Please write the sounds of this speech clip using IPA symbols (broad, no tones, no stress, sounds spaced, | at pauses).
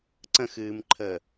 ǀ ə̃ x ɨː m ǃʰ əː